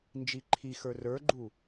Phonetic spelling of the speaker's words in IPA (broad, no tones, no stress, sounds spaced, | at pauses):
n d͡ʒ i ǃʰ i x ə˞ r ə˞ ɡ͡ǃ u